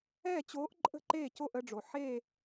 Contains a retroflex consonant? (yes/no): yes